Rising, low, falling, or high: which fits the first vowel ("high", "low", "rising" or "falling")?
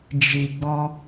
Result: low